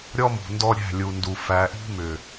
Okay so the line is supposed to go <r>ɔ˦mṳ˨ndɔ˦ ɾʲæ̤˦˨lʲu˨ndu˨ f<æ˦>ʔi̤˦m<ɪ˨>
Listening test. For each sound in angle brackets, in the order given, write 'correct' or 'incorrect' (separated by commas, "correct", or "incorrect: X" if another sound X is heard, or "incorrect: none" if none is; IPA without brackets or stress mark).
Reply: incorrect: ɾʲ, incorrect: æ˨, incorrect: ʏ˨